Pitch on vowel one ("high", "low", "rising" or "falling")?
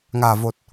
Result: low